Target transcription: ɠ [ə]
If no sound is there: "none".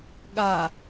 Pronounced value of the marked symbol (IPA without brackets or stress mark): a